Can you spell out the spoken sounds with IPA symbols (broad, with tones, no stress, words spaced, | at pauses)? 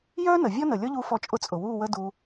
jœː˦ nə˨vʲɔ˦nə˨ lʲɔ˦ʎu˧ fɔ˦t͡ʃʼʊ˦t͡sʼʊ˨ wuː˦˨wəː˦ duː˧